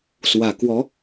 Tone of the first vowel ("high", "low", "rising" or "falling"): low